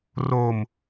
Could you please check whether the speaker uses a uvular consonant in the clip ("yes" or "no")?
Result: no